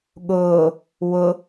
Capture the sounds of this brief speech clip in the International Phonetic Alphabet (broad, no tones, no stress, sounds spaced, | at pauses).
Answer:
ɠ ʊː | w ʊ